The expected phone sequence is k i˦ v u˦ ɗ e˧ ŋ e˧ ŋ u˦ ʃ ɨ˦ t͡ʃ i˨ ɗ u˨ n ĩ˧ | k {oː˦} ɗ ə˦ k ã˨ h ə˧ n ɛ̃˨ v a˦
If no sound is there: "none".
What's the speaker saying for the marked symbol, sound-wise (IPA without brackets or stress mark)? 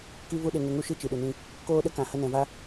oː˦